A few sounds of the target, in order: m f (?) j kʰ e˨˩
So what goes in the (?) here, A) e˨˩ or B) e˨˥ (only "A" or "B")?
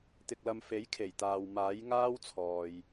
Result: B